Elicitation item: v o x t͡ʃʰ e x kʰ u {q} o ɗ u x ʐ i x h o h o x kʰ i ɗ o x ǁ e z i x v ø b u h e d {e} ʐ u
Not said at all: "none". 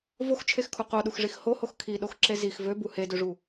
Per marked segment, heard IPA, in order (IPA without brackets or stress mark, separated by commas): q, ø